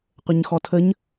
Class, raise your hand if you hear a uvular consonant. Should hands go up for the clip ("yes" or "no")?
yes